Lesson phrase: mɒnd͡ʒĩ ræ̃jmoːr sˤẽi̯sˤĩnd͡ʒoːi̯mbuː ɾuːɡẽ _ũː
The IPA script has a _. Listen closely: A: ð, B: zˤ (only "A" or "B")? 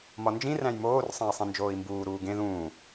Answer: A